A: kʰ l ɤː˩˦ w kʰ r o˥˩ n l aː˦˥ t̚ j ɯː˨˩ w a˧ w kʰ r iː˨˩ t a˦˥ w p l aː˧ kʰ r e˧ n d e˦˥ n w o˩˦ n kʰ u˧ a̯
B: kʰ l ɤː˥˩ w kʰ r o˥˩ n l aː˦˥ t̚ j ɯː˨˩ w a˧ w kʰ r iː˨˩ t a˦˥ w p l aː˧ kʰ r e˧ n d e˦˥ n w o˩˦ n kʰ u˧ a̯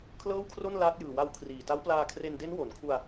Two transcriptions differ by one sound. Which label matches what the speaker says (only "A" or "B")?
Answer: B